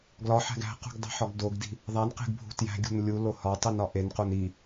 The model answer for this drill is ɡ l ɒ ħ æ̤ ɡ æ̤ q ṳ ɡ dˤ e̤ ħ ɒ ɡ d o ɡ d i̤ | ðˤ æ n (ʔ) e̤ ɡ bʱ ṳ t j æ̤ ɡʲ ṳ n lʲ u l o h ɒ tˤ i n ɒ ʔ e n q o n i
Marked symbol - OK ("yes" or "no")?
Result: no